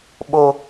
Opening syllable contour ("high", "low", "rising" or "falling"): high